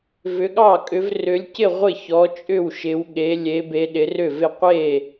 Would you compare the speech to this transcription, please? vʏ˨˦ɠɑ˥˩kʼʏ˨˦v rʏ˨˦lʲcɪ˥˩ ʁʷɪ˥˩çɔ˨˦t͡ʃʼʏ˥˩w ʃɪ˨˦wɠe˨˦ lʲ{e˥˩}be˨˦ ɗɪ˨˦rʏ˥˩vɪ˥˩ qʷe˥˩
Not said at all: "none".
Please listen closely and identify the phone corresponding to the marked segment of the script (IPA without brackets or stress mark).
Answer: e˨˦